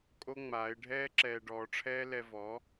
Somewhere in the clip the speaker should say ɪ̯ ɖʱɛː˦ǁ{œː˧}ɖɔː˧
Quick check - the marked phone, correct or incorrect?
incorrect: ɛː˧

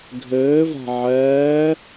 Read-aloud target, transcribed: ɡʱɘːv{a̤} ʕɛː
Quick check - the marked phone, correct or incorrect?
correct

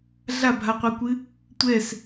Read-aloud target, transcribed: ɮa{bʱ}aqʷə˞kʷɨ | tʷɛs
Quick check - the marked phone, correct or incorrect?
correct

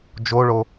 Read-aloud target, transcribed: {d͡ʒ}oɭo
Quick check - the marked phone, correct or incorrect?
correct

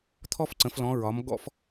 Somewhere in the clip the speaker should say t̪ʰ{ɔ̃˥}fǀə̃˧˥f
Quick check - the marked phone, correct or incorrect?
incorrect: ɔ˥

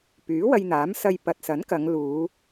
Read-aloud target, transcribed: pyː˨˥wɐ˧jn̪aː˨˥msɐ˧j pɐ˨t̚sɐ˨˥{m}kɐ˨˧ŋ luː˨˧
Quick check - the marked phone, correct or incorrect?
incorrect: n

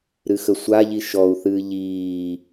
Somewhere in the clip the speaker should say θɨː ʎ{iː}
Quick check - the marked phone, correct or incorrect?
correct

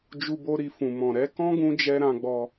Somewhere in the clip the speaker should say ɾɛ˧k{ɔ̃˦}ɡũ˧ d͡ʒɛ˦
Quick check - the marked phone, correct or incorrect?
correct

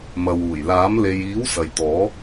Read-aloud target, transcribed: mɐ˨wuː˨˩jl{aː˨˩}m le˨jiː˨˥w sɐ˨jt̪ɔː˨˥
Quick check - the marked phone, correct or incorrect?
incorrect: aː˨˥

